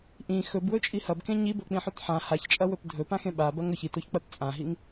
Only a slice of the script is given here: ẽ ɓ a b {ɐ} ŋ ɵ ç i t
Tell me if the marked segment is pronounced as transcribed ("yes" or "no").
yes